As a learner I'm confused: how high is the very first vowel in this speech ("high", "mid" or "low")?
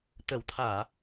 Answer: mid